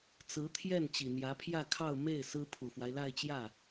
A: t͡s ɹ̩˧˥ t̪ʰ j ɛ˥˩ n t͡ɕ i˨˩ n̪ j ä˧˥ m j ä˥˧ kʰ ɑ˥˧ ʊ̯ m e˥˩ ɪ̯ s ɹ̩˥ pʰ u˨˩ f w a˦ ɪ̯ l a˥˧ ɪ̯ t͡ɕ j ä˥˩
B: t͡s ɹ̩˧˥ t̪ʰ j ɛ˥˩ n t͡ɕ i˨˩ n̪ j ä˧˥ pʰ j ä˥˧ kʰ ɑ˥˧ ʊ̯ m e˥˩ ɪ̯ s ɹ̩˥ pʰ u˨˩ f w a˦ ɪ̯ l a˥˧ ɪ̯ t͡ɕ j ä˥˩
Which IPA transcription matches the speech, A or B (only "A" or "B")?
B